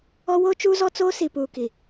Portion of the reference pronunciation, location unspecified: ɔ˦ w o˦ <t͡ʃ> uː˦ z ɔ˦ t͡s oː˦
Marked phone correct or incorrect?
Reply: correct